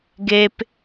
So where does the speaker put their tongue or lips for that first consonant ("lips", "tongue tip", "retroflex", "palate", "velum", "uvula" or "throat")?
velum